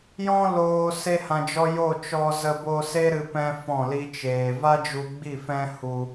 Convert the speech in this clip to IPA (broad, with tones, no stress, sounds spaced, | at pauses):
j ɔ̃˦ l oː˧ s e˦ h ã˧ d͡ʒ ɔ˦ j o˦˨ t͡ʃ ɔ˧ z ə˧ b o˧ s e˦ ɾ ɨ˧ p ɛ̃˦ f ɔ̃˦˨ l i˦ t͡ʃ eː˧ v a˦ d͡ʒ u˧ ɡ͡b i˦˨ f ɛ̃˦ h u˦